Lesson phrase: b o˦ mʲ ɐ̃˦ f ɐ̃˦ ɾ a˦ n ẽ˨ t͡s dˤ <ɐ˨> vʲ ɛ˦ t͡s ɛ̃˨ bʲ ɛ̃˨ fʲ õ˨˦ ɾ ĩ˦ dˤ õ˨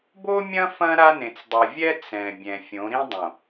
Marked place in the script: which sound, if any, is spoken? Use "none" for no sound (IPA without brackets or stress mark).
ɐ˨